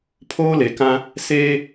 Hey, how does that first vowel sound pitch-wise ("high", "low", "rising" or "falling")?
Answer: high